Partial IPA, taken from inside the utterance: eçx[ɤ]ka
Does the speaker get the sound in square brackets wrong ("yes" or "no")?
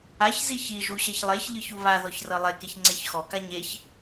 yes